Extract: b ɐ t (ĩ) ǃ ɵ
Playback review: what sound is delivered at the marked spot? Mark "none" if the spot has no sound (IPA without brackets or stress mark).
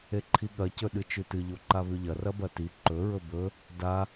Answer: i